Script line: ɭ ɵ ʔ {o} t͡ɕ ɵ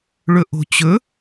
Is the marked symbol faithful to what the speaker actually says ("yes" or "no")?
no